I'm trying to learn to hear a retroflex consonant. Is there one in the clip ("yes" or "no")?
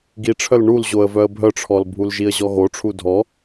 yes